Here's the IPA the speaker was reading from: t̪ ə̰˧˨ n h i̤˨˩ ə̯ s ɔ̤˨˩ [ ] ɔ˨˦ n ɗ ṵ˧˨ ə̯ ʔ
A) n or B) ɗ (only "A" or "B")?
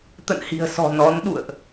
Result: A